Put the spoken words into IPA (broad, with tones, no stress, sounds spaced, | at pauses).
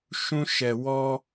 ʃ ũ˦ ʃ ɛ˧ w ɔ˦